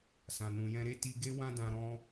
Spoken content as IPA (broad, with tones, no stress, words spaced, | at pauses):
sã˨ nũ˨jɛ̃˧ɾe˦ ti˧ɡe˦ wã˦dã˧ ɾɔ̃˦